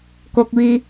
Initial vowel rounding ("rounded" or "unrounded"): rounded